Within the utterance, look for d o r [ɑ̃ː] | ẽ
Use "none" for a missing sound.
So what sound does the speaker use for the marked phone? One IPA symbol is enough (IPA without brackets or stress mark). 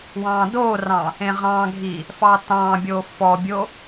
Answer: ɑ̃